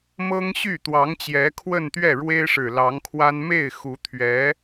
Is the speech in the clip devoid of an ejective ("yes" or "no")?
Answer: yes